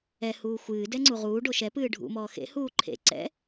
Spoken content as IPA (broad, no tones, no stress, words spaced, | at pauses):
ɛ huːxʷɨː dɛŋ͡ǀuʁuː ɖoʃɛ pɨːɖʱṵ mɔːxḛ huːǃʰḛ ǀɛ̰